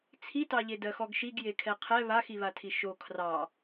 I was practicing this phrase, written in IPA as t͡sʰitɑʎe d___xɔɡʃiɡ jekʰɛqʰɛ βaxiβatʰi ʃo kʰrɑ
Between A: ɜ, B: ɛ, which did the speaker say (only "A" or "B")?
A